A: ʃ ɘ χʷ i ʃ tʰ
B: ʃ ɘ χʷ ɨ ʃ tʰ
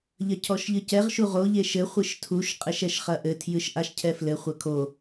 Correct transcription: B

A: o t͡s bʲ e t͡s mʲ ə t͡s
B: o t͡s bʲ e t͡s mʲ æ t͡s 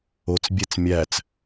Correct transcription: B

